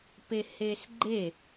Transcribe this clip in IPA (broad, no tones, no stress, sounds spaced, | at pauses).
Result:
p e h e s ɡ͡ǃ e